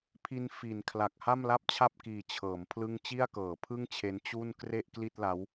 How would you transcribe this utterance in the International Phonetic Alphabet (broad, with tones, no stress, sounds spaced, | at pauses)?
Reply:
pʰ i˧ n f i˩˦ n kʰ l a˨˩ k̚ h a˥˩ m l a˥˩ p̚ t͡ɕʰ a˥˩ p̚ k iː˨˩ t͡ɕʰ ɤː˩˦ m pʰ l ɯ˥˩ ŋ t͡ɕ i˥˩ a̯ k ɤː˩˦ pʰ ɯ˥˩ ŋ t͡ɕʰ e˦˥ n t͡ɕ u˥˩ n k r e˥˩ ʔ k l i˥˩ t̚ l a˦˥ w